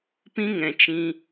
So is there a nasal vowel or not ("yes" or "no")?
yes